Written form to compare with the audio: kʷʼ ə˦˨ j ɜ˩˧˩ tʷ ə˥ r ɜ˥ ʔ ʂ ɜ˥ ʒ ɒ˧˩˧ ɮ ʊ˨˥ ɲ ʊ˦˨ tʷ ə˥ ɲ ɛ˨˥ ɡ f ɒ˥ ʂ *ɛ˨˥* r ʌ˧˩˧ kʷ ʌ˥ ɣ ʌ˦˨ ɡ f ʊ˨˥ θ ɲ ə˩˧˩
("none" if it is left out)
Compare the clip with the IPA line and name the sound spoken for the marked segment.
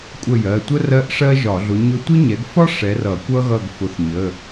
ɛ˨˥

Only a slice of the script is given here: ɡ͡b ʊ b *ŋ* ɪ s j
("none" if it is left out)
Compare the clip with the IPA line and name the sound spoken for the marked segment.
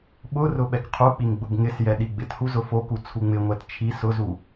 ŋ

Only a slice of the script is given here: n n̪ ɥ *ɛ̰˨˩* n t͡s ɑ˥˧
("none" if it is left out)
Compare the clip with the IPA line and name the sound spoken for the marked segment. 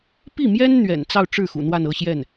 ɛ̰˨˩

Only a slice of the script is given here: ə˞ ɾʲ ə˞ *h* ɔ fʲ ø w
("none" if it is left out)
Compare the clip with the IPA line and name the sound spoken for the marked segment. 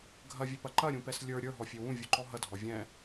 ɦ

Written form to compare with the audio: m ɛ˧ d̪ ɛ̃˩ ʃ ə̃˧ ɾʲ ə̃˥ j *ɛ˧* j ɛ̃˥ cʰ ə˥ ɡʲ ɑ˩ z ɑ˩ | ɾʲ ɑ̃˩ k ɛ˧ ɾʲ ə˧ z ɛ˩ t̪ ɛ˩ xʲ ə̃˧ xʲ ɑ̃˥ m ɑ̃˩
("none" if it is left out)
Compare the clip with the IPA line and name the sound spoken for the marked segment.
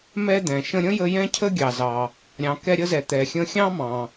ə˧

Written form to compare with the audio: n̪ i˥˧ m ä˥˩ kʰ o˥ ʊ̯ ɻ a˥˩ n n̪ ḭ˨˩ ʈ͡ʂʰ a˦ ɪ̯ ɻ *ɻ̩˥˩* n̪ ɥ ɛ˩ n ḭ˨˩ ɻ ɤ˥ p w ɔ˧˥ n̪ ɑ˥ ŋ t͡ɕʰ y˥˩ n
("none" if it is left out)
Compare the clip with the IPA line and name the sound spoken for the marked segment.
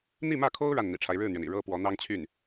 ɻ̩˥˩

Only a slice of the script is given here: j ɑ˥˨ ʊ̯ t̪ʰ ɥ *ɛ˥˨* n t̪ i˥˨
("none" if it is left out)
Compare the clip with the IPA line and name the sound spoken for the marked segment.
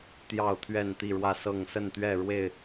ɛ˥˨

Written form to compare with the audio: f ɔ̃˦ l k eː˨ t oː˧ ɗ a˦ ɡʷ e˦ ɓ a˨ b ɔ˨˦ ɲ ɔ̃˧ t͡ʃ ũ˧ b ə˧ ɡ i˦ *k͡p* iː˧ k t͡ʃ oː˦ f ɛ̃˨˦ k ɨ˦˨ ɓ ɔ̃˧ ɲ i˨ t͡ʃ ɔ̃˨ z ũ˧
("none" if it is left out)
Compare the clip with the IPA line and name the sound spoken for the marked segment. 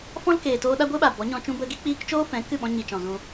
k͡p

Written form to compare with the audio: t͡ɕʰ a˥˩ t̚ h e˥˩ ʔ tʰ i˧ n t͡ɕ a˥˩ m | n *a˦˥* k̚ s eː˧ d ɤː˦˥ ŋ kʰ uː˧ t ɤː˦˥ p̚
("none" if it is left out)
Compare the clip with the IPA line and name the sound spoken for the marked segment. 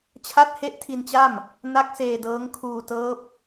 a˦˥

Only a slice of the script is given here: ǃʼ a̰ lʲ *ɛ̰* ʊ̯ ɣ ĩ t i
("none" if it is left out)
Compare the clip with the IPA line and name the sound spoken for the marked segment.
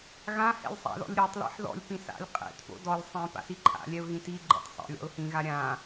ɛ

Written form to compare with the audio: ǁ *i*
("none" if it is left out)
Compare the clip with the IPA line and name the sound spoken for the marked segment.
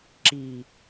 i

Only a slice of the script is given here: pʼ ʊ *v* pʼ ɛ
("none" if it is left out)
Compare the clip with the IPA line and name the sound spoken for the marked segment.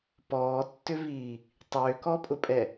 none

